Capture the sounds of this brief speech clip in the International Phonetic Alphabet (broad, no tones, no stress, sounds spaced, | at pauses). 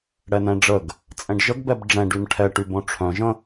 ɽ ɛ n ɛ̃ ɖ͡ʐ ə ɡ | t͡sʼ ɛ̃ ɖ ʒ ə ɡ b ɛ b ɖ͡ʐ ɛ̃ ɖ y n ʈʰ ɛ ʈ y b õ ʈ͡ʂʰ œ̃ ʒ ə̃